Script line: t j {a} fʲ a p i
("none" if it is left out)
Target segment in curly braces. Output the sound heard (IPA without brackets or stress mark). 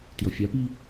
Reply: ʌ